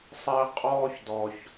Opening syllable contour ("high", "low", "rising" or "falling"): high